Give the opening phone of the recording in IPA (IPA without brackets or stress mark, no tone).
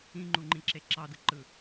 ĩ